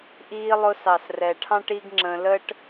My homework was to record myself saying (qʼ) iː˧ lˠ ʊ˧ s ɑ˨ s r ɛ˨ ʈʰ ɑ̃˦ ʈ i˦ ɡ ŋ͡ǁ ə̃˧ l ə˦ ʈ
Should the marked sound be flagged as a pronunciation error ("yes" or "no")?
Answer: yes